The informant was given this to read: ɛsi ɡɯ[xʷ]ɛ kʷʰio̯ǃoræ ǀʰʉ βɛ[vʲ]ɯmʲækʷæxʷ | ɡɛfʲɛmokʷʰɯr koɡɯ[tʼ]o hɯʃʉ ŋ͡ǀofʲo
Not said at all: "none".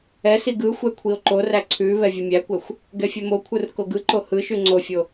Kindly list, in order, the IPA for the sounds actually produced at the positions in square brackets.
xʷ, vʲ, ǃ

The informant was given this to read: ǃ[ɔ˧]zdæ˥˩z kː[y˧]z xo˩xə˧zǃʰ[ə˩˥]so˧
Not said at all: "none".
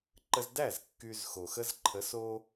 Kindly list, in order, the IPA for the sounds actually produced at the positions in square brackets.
ə˧, y˧, ə˩˥

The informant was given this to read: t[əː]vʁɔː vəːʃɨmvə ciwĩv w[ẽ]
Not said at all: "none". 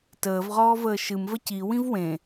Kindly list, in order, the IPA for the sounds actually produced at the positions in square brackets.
əː, ẽ

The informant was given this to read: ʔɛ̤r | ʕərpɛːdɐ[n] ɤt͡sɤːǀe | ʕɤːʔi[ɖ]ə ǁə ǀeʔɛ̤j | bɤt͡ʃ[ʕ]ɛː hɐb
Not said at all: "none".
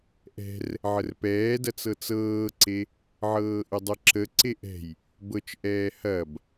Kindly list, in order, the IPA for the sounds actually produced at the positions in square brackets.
t͡s, dˤ, ʔ

